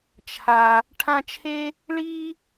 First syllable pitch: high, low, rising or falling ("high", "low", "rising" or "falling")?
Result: low